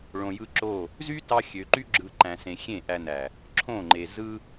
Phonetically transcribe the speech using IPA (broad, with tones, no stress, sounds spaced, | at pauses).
ɭ õ˨ j ɯ˧ ǁ o˦˨ | z y˦ t ɑ˧ xʲ ø˨ ǃ y˦ ɡ͡ǁ ɯ˧ ǃ æ̃˨ s ẽ˨ xʲ ẽ˦˨ ʔ æ˧ n æ˨ | ǁʰ õ˦˨ ŋ͡ǃ e˨ z ɯ˦